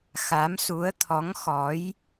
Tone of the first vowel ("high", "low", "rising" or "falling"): rising